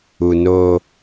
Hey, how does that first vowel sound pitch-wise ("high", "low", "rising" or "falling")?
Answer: low